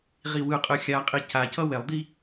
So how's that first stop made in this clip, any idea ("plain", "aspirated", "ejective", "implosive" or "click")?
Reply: ejective